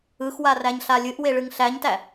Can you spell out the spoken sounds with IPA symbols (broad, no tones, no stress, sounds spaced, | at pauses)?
ɯ x w a r æ ɲ ɬ a lʲ ɨ ʔ w e ɭ ɨ ŋ ɬ æ ɲ t æ